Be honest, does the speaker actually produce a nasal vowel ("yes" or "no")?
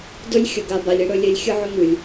no